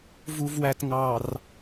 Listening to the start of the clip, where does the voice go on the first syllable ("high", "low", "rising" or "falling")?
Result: low